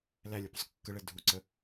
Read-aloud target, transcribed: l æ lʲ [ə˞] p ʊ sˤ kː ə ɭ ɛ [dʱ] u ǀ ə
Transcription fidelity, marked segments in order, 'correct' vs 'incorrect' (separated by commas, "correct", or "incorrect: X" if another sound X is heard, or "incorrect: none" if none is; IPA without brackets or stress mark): correct, correct